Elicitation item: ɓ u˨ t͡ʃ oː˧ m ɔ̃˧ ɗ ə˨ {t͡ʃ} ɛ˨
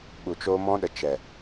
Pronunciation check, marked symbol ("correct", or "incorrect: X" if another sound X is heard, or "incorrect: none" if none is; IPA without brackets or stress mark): correct